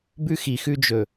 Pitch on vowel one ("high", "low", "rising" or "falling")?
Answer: high